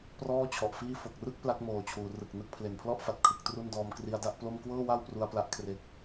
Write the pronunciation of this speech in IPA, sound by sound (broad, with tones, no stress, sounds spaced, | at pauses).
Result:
p r ɔː˥˩ t͡ɕʰ ɔ˨˩ ʔ f iː˥˩ f o˨˩ k̚ r ɯ˥˩ k̚ p l a˦˥ k̚ m oː˨˩ t͡ɕʰ uː˩˦ r ɯ˨˩ k̚ n ɯ˥˩ k̚ pʰ l e˨˩ n pʰ l ɔ˥˩ ʔ f a˨˩ t̚ kʰ ɯ˨˩ k̚ t r u˥˩ n d ɔː˧ m k r i˧ a̯ d a˥˩ ʔ p l o˥˩ m k w ɤː˥˩ w a˥˩ w p r u˧ a̯ p l a˦˥ ʔ kʰ r e˦˥ k̚